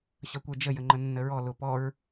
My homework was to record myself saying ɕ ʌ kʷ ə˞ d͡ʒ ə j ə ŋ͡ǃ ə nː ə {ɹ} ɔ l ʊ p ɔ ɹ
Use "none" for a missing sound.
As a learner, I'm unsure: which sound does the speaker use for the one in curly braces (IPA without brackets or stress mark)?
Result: ɹ